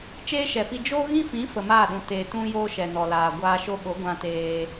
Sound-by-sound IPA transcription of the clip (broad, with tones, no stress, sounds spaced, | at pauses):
t͡ʃ eː˦ ʃ ɛ˨ f i˧ d͡ʒ oː˦ ɣ ĩ˦ f ĩ˨˦ f ə˨ m aː˦˨ ɗ ũ˨ t e˨ t ũ˧ j o˧ ʃ ɛ˨ n ɔ˨ l aː˨ ɡʷ aː˧ ʃ o˦ ɓ o˨˦ ɡʷ ã˧ t eː˧